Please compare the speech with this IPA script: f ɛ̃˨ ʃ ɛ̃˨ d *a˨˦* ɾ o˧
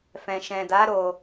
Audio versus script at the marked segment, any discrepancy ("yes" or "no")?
no